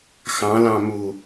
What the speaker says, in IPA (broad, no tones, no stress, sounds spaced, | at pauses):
x ɑ̃ l ɑ̃ m u